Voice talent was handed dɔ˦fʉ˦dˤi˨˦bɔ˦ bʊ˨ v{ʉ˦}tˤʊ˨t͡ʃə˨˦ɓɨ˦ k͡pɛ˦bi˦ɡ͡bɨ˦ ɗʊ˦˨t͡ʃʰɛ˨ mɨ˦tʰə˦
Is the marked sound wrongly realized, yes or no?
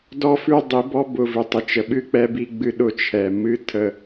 yes